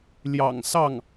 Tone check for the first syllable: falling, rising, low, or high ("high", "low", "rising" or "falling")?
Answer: low